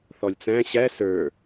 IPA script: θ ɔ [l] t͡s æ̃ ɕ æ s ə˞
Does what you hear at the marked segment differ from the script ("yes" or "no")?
yes